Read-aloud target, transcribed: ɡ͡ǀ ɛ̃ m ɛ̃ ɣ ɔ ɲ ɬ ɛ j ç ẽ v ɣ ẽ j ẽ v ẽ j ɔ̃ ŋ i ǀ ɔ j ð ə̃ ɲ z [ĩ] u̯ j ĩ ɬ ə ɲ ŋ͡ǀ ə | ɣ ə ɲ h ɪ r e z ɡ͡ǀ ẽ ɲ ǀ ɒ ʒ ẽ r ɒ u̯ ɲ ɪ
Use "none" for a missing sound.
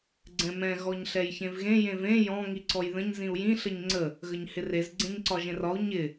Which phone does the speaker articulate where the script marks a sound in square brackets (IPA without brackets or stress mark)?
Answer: ĩ